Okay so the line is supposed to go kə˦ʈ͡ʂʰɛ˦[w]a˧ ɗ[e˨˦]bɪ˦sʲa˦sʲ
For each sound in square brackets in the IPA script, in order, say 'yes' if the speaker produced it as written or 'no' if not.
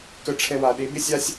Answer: yes, yes

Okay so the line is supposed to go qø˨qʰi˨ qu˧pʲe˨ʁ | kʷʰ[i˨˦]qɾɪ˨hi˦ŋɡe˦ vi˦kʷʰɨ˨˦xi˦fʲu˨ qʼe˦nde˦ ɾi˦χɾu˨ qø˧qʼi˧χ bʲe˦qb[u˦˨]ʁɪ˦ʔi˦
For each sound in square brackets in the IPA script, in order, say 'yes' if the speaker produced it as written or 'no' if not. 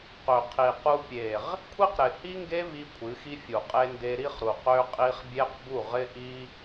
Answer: no, yes

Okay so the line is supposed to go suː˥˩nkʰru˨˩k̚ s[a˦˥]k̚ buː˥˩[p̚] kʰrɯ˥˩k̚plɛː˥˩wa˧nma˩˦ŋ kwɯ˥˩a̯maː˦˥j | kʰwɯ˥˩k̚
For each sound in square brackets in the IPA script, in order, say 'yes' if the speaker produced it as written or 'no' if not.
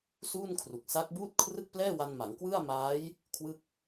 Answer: yes, no

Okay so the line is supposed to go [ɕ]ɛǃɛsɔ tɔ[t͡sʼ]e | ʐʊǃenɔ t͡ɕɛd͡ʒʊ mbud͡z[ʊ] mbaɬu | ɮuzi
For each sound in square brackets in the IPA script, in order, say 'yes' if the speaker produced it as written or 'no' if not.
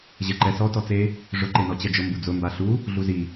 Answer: no, no, yes

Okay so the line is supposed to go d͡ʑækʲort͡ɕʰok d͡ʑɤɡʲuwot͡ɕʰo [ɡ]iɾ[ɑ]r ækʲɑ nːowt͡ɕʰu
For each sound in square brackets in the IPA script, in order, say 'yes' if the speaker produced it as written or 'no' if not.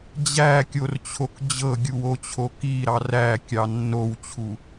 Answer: no, yes

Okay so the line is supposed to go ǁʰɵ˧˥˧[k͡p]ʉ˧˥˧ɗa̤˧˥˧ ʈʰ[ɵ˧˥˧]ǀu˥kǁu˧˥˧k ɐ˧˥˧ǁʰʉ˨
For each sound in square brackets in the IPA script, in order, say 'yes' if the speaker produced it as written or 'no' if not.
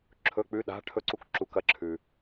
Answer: yes, no

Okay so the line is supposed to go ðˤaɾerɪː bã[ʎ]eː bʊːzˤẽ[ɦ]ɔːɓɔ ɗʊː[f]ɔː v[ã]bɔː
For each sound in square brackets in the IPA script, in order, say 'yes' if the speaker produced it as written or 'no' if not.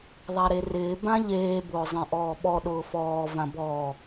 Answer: yes, no, yes, yes

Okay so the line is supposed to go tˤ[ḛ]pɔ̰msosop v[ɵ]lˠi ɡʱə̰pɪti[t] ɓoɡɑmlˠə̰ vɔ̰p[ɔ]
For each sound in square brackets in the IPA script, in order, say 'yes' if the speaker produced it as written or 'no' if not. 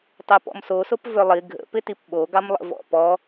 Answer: no, no, no, yes

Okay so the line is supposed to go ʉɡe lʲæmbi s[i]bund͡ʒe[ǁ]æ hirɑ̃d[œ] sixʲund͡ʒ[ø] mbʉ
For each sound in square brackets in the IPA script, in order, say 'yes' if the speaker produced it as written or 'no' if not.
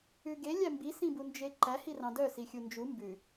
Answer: no, no, yes, no

